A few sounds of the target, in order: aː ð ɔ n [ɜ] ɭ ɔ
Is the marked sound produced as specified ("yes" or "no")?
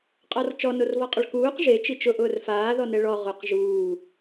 no